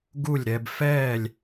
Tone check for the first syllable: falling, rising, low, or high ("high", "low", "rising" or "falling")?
falling